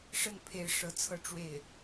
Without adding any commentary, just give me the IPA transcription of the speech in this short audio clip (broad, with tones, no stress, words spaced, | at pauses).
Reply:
ʂə˥˩npʰe˧˥ɪ̯ ʂɤ˧˥t͡sʰɤ˥˧ ʈ͡ʂwe˥˩ɪ̯